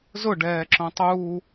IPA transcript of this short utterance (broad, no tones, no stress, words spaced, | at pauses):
zʊɖɛːǁõ tˤuː